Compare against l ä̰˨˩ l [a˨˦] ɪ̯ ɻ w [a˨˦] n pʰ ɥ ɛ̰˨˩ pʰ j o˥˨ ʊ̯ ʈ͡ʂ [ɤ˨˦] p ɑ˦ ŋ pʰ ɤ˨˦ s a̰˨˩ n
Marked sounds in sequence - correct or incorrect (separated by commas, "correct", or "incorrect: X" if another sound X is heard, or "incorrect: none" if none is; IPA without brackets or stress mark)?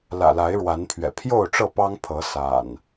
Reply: correct, correct, incorrect: ɤ˥˨